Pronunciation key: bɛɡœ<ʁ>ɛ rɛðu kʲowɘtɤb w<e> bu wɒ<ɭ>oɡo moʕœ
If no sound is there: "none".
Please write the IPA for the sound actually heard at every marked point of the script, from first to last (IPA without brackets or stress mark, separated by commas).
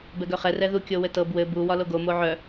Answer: χ, ɘ, l